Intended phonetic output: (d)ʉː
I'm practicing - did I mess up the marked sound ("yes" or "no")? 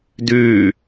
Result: no